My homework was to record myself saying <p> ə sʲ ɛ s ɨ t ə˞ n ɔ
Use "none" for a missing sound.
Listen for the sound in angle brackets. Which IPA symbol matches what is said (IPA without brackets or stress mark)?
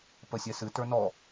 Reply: p